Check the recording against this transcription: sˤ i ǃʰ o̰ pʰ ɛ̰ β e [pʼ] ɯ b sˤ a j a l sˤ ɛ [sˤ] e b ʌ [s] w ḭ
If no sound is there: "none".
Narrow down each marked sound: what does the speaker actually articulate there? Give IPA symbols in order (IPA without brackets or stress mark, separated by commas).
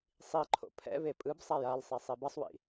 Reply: pʼ, sˤ, sˤ